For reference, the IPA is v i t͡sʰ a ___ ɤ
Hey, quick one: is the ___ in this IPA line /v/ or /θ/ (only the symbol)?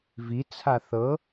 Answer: θ